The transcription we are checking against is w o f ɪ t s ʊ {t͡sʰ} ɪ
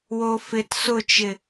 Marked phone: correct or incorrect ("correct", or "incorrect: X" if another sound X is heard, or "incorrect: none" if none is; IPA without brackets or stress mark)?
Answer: incorrect: t͡ʃ